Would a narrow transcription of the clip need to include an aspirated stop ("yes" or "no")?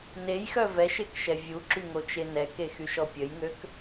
no